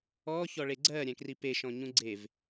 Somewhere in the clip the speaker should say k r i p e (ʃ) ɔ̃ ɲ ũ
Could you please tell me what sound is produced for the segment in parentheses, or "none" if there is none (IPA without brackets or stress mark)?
ʃ